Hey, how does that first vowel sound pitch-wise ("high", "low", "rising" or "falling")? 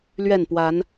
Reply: falling